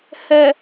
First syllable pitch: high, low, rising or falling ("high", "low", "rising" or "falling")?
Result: low